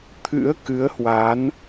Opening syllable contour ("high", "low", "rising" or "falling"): rising